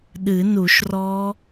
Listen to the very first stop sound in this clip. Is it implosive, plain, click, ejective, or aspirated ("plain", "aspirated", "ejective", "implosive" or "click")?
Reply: implosive